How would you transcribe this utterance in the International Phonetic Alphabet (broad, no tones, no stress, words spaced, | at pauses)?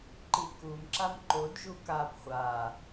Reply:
ǃikum ǁamǃod ʒukab χʷa